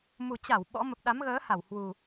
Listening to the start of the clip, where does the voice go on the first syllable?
low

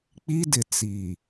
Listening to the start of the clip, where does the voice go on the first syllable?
high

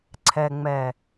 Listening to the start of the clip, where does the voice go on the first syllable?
low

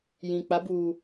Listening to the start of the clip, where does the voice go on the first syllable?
low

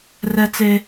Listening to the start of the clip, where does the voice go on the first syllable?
high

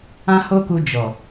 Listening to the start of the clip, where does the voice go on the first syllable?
high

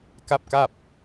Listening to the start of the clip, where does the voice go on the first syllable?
falling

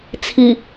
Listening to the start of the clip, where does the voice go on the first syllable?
low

